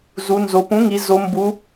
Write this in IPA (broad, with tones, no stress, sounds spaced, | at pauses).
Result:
z u˩˧ n z o˩˧ p ũ˩˥ ŋ i˩˧ z o˩˧ m b u˩˧